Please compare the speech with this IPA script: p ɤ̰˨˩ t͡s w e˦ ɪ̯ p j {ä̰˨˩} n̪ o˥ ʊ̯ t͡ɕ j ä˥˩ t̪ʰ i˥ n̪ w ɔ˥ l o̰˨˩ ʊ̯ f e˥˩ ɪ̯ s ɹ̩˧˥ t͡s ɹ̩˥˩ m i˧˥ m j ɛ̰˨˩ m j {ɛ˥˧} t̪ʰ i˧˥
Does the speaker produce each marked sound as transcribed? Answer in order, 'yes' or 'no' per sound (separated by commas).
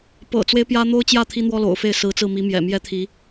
no, no